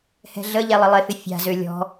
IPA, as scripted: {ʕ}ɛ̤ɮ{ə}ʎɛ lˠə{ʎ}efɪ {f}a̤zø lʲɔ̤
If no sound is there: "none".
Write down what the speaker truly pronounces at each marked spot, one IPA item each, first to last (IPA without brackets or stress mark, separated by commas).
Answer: h, ə, lˠ, fʲ